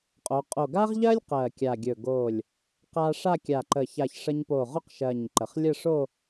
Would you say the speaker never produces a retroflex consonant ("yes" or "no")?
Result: no